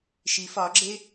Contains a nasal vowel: no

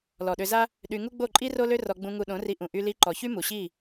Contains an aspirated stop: no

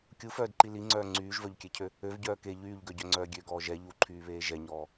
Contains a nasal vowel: no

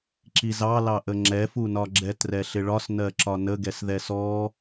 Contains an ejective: no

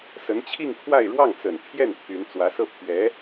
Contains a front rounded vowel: yes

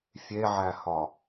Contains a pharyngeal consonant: yes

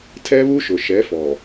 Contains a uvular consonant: no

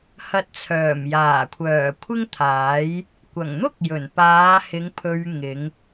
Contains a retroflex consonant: no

